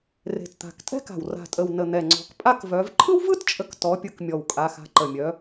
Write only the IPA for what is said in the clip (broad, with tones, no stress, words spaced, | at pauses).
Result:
re̤˨˩tt̪a̤˨˩k tʼɛ̤˥ka̤˨˩w ra̤˨˩tʼə˨˩w nə˨˩ n̪ɛ˨˩ŋ͡ǀɔ̤˨˦k pʼa˥kvœ˨˦v ǃʰɯ˥wvɯ˥tt͡ʃʼə˨˦k tɔ˨˦pʲɯ˨˦kmʲɔ˨˩w kʼa˨˦xa̤˨˦ǃə˨˩mʲœ˨˦